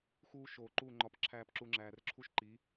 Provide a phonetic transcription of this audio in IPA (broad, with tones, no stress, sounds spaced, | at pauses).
x uː˧ ʃ oː˨ ǃ uː˦˨ ŋ͡ǃ ɒ˧ p ǁʰ æː˦ p ǁ u˧ ŋ͡ǁ æː˨ r ǁʰ u˦ ʃ ǃ i˨˦